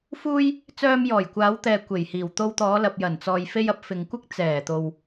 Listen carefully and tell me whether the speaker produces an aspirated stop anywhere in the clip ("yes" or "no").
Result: no